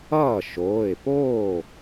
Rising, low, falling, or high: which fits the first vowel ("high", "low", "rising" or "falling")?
falling